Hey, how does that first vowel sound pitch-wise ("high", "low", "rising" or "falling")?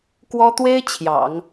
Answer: high